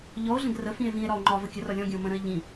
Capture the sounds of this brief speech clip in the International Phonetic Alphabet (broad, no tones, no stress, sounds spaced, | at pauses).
ʎ ɔ o̯ ɮ ə̃ ɡ r ə f ĩ e̯ v ĩ e̯ ɾ ɒ o̯ ŋ͡ǃ ɒ v ə kʲ ə r ɒ lʲ ɔ̃ ɡʲ ə̃ o̯ m ə̃ ɾ ə̃ e̯ ʎ ĩ